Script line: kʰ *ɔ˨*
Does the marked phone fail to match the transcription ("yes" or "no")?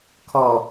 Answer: no